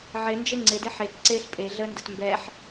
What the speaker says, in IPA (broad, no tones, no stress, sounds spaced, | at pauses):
ʕ ɪ n d͡ʒ e ŋ͡ǀ ɪ d ɪ ħ e k ǀ e ɬ pʼ e ɮ ə n d ɘ t m b ɛ ħ